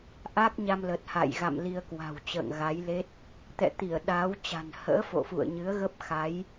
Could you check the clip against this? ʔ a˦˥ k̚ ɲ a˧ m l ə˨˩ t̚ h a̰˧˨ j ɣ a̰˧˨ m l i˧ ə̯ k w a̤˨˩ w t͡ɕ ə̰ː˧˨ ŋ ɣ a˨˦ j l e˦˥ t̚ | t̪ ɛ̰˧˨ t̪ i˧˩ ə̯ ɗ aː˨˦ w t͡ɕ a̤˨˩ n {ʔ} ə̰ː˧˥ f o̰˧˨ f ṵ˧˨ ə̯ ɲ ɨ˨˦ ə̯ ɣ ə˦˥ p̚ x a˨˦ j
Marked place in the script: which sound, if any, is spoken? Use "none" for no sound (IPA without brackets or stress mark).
h